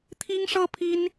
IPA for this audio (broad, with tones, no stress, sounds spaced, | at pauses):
t̪ʰ i˥ ŋ ʂ ɤ˥ pʰ i˥ n